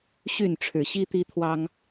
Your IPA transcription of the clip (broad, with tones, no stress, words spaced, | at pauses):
ɕy˥˨nʈ͡ʂʰɻ̩˨˩ɕi˦ t̪i˦t̪ʰwɑ˦ŋ